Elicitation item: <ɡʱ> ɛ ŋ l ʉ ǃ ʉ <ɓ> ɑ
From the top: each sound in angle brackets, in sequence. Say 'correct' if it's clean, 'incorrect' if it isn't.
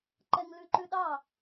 incorrect: ǃ, incorrect: ɗ

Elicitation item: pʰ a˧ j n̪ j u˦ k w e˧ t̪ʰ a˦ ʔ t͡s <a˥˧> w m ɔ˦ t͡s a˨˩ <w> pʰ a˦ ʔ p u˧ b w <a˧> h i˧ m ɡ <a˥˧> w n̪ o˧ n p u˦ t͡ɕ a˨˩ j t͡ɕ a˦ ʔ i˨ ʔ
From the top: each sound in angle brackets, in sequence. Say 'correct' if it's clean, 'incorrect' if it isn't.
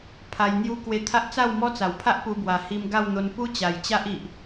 correct, correct, incorrect: a˨˩, correct

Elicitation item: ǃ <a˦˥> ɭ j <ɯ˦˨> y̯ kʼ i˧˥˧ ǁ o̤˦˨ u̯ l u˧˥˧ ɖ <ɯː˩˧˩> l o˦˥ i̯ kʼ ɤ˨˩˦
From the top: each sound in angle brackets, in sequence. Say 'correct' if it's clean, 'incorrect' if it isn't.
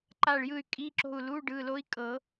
incorrect: a˦˨, correct, correct

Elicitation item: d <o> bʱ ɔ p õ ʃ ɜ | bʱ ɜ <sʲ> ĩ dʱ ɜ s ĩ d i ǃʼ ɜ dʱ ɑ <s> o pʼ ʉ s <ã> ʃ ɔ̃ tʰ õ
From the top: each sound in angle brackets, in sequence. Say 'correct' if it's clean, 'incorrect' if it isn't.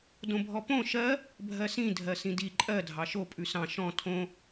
incorrect: õ, incorrect: s, incorrect: ʃ, incorrect: ɑ̃

